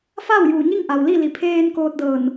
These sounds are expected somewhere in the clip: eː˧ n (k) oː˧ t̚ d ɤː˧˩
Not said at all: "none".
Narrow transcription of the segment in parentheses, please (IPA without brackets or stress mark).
k